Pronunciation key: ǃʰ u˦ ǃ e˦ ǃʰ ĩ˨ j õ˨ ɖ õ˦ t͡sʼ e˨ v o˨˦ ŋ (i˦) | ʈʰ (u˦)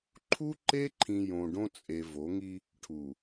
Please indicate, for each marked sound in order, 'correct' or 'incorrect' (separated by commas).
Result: correct, incorrect